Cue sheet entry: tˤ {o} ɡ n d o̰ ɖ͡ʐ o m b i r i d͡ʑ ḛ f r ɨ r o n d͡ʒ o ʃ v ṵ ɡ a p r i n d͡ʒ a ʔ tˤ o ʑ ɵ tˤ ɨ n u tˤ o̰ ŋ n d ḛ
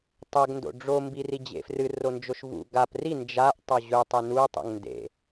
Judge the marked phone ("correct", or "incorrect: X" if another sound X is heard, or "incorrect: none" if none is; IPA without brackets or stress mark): incorrect: ɵ